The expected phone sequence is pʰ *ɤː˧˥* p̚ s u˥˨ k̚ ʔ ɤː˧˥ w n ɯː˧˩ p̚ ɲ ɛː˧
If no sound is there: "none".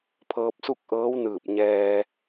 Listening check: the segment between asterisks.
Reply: ɤː˧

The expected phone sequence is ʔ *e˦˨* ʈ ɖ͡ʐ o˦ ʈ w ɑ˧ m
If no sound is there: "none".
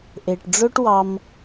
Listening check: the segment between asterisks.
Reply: e˨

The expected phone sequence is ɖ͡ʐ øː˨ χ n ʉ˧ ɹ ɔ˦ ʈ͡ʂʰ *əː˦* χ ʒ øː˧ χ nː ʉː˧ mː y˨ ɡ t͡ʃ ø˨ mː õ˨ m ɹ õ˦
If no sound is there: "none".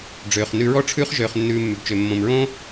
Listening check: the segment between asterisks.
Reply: ʉː˦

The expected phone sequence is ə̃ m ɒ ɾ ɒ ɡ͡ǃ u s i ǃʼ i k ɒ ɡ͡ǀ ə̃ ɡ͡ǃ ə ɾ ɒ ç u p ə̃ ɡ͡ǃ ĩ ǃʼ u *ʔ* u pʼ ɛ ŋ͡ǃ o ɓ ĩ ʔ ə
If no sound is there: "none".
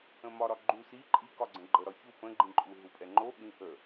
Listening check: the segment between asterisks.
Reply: ɦ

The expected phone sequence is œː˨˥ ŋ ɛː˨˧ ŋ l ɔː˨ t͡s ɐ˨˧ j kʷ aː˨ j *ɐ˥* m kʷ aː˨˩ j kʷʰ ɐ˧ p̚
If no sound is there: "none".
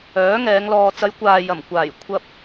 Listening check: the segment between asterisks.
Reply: ɐ˨˩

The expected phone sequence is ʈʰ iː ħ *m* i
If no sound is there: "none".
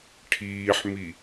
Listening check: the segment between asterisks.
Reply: m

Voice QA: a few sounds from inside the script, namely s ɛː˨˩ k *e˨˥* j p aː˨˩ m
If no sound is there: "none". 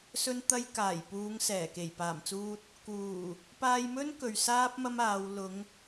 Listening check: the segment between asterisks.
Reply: e˨˩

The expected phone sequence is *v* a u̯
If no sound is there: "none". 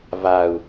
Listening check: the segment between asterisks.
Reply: v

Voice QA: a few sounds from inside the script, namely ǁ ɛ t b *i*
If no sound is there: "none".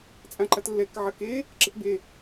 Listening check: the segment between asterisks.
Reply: e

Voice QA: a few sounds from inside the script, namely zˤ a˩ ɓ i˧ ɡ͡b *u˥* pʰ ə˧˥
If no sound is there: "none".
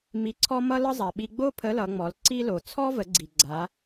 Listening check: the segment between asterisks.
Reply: o˥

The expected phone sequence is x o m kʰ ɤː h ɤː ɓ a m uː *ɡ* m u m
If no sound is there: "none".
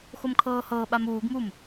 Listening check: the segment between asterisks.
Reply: ɡ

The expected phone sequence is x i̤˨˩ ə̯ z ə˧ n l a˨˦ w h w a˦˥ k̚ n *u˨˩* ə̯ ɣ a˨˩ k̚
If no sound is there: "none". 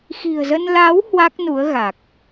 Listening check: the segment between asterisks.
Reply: u˨˦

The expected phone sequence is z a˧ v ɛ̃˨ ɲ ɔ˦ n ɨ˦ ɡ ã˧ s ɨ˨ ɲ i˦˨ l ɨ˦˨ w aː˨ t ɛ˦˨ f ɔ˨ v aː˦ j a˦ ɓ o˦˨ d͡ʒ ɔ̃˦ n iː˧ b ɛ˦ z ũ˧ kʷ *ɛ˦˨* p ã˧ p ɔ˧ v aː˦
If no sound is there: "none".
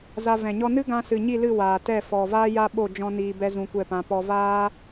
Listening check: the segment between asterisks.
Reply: ɛ˦˨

